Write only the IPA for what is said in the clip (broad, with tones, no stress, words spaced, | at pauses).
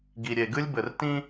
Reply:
ɡi˨ɾʲe˨ɡɨ˦lʲ bɘ˨rtĩ˦